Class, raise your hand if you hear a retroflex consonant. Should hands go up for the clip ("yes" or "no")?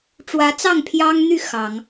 yes